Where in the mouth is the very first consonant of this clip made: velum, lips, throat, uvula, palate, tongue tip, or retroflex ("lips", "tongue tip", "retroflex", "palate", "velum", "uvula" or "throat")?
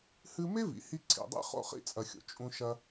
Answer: throat